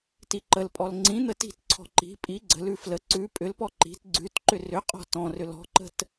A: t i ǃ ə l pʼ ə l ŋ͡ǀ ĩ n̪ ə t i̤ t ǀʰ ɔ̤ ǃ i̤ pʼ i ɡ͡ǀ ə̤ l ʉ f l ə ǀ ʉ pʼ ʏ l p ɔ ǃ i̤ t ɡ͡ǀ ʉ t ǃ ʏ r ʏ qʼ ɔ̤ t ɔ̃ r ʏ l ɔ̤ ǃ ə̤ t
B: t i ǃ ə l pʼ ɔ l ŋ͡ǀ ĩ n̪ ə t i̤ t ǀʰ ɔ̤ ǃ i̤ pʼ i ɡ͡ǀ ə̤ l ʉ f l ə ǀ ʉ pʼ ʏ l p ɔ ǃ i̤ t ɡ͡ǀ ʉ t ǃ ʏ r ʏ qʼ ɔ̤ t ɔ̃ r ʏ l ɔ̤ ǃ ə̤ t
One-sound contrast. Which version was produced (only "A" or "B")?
B